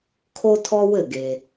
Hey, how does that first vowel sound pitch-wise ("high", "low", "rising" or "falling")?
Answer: high